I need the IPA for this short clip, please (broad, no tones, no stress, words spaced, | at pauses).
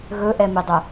ɣɵʔɛmɨdˤo